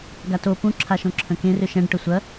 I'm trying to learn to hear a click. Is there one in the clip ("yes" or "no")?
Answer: yes